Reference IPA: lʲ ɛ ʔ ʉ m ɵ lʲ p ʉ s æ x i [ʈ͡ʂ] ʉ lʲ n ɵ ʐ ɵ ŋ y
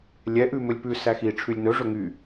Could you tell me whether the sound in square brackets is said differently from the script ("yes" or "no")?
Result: yes